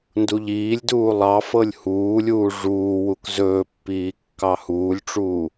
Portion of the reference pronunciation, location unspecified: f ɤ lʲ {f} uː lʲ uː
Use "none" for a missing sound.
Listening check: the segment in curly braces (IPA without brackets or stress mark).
h